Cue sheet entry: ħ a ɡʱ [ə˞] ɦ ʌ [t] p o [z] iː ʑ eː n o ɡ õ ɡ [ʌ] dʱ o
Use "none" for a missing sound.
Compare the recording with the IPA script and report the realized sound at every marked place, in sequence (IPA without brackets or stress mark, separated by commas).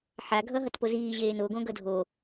ʌ, t, z, ʌ